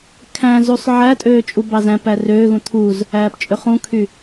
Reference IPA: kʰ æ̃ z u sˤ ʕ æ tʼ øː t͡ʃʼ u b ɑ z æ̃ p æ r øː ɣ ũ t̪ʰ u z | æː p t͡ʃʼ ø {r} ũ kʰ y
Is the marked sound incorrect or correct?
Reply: incorrect